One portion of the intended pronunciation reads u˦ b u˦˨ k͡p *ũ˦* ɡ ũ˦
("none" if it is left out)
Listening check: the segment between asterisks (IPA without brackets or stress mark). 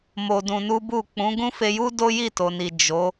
ũ˨˦